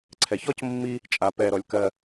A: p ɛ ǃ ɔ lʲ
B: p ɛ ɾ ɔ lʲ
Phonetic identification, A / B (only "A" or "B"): B